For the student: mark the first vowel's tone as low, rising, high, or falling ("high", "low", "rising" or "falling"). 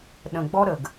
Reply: low